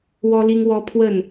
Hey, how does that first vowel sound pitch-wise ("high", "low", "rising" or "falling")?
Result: high